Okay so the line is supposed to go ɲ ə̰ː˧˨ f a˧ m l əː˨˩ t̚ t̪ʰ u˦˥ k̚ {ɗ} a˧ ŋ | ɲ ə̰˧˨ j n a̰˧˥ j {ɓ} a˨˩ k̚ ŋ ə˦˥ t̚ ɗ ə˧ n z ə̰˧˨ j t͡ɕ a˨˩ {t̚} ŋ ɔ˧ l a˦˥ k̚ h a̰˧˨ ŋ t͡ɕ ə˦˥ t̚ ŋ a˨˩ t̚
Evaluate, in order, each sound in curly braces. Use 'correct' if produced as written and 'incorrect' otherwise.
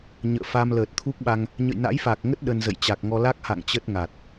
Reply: incorrect: ɓ, incorrect: f, incorrect: k̚

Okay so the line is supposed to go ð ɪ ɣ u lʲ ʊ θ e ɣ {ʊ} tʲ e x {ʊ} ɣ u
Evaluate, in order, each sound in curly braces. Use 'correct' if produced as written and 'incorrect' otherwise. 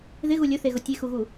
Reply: correct, incorrect: u

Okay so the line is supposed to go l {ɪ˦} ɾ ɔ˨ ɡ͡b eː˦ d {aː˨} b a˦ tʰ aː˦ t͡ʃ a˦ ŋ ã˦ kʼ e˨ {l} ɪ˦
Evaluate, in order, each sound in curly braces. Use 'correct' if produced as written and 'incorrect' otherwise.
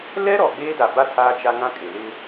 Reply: incorrect: ɛ˦, incorrect: a˨, correct

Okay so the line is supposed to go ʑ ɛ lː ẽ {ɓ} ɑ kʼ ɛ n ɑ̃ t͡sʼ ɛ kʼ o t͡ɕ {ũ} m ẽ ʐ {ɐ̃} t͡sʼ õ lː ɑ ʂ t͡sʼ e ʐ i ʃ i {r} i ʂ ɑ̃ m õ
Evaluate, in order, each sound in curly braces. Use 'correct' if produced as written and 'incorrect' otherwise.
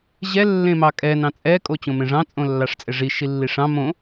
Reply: incorrect: m, incorrect: õ, incorrect: ɑ̃, incorrect: lː

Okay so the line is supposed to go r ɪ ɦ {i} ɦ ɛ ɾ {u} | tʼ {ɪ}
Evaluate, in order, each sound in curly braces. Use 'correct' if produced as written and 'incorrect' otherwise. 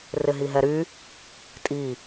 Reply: correct, incorrect: y, incorrect: i

